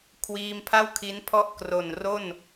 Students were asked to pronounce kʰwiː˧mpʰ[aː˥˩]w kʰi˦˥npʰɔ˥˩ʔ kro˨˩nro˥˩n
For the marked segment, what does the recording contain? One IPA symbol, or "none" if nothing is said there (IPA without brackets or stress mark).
a˥˩